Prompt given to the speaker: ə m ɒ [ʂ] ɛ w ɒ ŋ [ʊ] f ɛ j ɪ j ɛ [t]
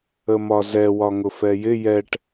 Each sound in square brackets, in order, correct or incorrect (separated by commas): incorrect, correct, incorrect